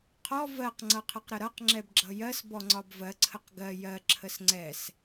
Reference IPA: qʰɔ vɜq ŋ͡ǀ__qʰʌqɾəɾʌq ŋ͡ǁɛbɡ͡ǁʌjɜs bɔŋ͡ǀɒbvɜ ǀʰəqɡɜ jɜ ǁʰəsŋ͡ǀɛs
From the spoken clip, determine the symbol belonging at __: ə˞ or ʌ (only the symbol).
ʌ